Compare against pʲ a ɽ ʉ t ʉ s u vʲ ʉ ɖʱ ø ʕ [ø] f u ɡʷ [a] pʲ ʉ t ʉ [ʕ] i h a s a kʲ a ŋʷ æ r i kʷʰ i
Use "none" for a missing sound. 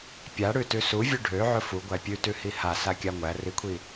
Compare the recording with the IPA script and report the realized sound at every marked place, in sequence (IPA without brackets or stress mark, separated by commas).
ɵ, æ, h